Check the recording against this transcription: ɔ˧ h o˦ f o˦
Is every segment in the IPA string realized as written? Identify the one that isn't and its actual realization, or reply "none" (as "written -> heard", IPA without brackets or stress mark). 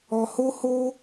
f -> h